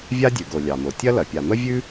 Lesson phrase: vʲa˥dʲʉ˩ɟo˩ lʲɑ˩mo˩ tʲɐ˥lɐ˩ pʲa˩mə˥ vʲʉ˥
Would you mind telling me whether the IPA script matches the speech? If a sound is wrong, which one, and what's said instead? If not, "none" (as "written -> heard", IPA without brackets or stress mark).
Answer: ɟ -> ɡ